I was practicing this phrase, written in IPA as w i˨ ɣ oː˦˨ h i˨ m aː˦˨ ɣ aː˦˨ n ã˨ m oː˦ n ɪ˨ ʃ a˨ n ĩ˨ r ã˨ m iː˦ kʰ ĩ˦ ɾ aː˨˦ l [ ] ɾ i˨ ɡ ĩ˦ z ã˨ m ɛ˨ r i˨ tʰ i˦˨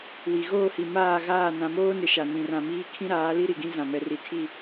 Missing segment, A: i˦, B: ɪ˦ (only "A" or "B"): A